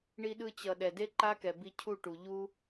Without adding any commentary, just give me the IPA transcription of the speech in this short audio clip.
ɳi˧ɗɯ˧t͡ɕʌ˨ ɗɛ˨de˦ ǃa˦kɛ˨ bi˧cʰu˦˨ʈu˨ ʎu˦

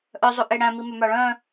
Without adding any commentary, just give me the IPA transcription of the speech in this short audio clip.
ʔœzˤuʔe ɽæ̃mimœ mɑɭœ̃

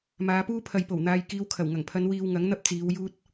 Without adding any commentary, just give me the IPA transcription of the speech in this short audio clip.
maː˨˧puː˥ pʰɐ˨jpo˨˩wn̪aː˨j kiː˨˧wkʰɐ˨˩wŋɐ˨˩ŋpʰɐ˨˧n wiː˧wŋɐ˨˥ŋ n̪ɐ˥p̚t͡siː˨˧w juː˧t̚

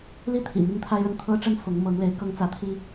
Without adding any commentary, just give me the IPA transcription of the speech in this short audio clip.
li˥˩t̪ʰḭ˨˩ mi˥ŋt̪ʰa˥ɪ̯ɻə˥˩n t̪ʰɤ˥ʈ͡ʂə˥n fʊ˧˥ŋmɤ˧˥ŋle˧˥ɪ̯kɤ˥ŋ t͡sä˧˥t̪ʰi˥

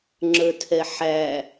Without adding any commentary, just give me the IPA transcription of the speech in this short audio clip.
ŋ͡ǁə˞tʰɛħæ

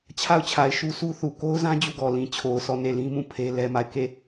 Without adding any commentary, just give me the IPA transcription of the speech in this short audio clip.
t͡ɕʰa˦˨ʊ̯t͡ɕʰa˨ɪ̯ ʃu˦sʰu˦θu˨ ko˦ʊ̯zã˦ d͡ʑu˦˨ɡɔ˨lĩ˨ t͡ɕʰo˨ʊ̯sʰɔ˦˨ ne˦˨lĩ˦mũ˦˨ pʰe˦lɛ˦ma˦˨ɪ̯ ke˦˨

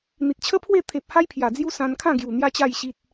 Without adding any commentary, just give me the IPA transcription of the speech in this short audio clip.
n̪i˨t̚t͡ɕʰə˦pʰwe˥˧ t̪ʰe˨p̚ ha˦jpʰja˨˩ d͡zju˦sã˧nkʰã˥˧ ɡju˨˩n̪ja˦t͡ɕa˥˧jɕi˦t̚

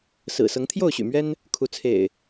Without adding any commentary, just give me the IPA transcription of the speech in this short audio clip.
sɹ̩˨˩ sɤ˨˦ŋt̪ʰjo˥˨ʊ̯ɕy̰˨˩mɥɛ˦n | kʰu˨˦ t͡sʰḛ˨˩ɪ̯

